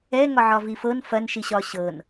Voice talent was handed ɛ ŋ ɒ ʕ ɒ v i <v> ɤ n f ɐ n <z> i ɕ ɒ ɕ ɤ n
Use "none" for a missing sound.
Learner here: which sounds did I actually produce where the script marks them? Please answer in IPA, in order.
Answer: f, ʃ

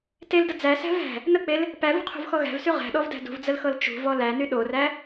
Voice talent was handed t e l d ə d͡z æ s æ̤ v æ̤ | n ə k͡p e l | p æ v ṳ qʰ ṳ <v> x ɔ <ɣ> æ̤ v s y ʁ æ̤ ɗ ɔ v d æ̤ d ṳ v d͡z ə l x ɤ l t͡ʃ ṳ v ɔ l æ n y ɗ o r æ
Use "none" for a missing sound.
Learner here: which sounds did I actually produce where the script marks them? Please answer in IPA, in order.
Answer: v, ɣ

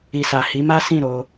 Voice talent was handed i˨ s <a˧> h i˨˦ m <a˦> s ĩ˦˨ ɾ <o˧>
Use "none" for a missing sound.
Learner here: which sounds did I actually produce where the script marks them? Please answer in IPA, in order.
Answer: a˨, a˦, o˧

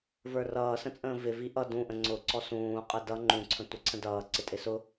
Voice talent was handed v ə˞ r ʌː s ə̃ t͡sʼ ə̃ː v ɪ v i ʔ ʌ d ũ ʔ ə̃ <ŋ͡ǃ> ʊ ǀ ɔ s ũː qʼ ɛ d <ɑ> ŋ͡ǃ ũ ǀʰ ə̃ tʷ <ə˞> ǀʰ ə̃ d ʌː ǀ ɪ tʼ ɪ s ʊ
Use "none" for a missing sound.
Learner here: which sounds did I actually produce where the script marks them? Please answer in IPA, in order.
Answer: ŋ͡ǀ, ʌ, ʌ

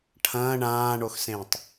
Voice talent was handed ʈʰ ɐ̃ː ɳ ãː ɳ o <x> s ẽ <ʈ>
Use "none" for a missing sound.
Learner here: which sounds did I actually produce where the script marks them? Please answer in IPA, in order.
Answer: x, tˤ

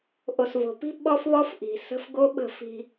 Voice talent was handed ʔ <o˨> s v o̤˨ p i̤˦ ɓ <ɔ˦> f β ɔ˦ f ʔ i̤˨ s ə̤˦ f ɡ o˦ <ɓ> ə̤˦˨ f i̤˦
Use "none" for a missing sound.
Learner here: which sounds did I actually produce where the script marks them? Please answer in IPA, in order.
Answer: o˨, ɔ˦, ɓ

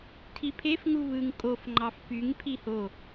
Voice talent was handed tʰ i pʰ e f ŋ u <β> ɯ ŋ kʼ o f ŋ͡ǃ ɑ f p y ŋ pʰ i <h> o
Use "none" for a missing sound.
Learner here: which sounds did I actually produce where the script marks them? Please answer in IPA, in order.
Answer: β, h

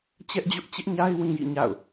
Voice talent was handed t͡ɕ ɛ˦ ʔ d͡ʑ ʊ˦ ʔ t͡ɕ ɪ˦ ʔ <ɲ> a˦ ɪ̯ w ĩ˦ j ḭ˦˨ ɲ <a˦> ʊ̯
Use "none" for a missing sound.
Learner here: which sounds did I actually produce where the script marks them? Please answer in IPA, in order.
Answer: ɲ, a̰˦˨

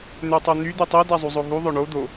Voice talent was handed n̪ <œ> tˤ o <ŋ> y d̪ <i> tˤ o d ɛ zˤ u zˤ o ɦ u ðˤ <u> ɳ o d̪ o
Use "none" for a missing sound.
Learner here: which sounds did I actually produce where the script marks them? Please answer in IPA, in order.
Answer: ø, n̪, y, ø

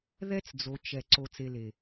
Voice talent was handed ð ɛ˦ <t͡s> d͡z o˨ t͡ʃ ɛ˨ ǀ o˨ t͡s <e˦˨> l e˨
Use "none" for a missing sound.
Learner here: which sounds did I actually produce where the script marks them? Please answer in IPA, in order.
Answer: t͡s, e˨

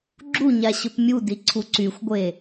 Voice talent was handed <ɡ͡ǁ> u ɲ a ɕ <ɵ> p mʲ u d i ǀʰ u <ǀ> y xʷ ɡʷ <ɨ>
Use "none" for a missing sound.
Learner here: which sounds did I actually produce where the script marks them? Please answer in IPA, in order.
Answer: ɡ͡ǁ, ɵ, ǀ, e

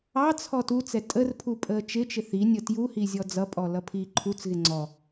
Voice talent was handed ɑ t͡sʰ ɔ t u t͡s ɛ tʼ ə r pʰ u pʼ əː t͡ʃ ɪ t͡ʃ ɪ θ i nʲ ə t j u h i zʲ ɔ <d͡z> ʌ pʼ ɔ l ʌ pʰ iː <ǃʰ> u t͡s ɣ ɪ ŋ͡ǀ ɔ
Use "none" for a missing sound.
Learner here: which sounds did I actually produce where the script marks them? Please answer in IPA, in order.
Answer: d͡z, ǃʰ

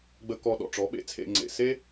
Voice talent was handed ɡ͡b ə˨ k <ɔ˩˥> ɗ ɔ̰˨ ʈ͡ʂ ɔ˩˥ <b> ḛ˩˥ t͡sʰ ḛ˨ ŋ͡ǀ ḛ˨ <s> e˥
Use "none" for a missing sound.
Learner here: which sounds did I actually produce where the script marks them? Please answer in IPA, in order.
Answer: ɔ˨, ɓ, s

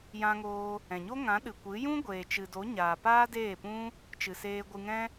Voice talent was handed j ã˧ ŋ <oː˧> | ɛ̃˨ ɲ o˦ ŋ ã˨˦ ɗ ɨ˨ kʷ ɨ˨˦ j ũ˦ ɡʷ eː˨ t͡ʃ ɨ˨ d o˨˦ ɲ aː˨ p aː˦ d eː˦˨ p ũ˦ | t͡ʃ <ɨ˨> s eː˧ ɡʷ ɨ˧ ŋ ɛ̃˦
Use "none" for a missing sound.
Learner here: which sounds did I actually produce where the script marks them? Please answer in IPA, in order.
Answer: oː˧, ɨ˨

